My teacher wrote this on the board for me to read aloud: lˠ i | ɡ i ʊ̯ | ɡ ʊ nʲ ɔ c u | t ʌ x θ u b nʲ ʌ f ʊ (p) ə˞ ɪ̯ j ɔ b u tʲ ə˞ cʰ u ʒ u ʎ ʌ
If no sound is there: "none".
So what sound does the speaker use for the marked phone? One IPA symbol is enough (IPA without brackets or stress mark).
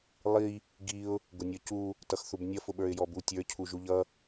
ɓ